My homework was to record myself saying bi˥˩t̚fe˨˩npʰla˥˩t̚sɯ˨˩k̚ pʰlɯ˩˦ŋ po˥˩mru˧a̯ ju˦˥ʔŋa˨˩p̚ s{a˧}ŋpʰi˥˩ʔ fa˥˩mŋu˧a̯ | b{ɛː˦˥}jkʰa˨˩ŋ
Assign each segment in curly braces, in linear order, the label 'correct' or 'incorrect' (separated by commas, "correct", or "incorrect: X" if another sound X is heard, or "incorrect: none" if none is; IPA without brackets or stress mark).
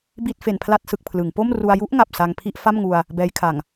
correct, correct